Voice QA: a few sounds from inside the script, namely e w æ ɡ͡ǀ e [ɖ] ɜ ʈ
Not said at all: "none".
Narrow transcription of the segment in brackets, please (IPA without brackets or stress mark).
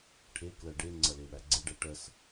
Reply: ɖ